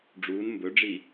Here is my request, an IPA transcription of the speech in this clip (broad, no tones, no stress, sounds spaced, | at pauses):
ɖ͡ʐ uː n m b ɵ ɖ͡ʐ i